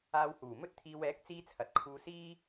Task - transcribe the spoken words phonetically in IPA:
aː˧whuː˨˩mɵ˥t̚t̪ʰiː˧w ɛː˨˥k̚t͡siː˧ t͡sʰɐ˨t̚kʰuː˧siː˥

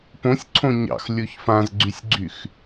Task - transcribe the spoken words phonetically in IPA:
põsʲǀʰõ ɲɑ̰x lʲoçfãzɡ͡ǀysʲɡ͡ǀyx

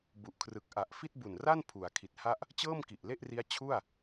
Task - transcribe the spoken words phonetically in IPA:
bu˨˩ʔkʰrɯ˨˩k̚ ʔa˨˩ʔfi˥˩t̚bu˨˩nra˥˩n pʰu˩˦a̯kʰi˨˩t̚ha˥˩ʔ | t͡ɕɤː˥˩mki˨˩ʔle˥˩ʔri˦˥a̯ t͡ɕʰu˥˩a̯

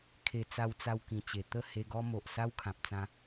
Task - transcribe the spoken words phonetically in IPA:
kʰe˧ t͡sa˧wt͡sa˧wkĩ˨˩t͡ɕe˨˩ t̪ə˥˧ he˧ɡɔ˦mo˨ʔ sa˦wkʰã˨p̚t͡sã˧

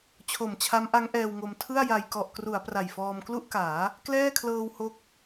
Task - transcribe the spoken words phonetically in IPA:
t͡ɕʰo˨˩mt͡ɕʰa˦˥mʔa˦˥ŋ ʔɛː˧wŋo˧m tʰɯ˥˩a̯ja˧j kɔ˨˩ʔkru˩˦a̯ pra˨˩jfɔː˧mklu˥˩ʔkaː˩˦ | klɛː˥˩kʰlɤː˧w ho˦˥k̚

